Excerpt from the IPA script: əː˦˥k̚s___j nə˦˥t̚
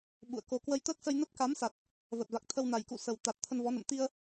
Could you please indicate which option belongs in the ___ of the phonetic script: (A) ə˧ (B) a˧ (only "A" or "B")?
A